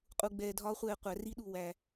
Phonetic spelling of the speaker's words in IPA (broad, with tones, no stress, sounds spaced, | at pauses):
qʼ u˧ ɡ͡b ɛː˧ dʱ ɒː˦ χʷ ɛː˧ qʷ æ˨˦ r i˦ ɗ u˨ w æ˧